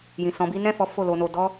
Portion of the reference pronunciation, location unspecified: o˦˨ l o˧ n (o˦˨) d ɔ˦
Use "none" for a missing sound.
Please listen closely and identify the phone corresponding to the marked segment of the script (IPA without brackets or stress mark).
o˧